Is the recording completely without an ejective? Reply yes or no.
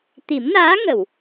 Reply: yes